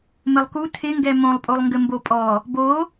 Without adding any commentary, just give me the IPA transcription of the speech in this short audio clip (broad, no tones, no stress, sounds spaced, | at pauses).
m ɘ lˠ k u tʰ ɪ ŋ ɡ ɛ m õ lˠ pʼ o lˠ ŋ ɡ ɘ m b o pʼ ɔ | b o